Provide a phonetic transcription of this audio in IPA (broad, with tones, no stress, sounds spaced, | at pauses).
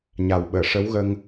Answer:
ɲ a˨˩ w ɓ əː˨˩˨ ʂ ə˧˥ w ɣ ə˧ ŋ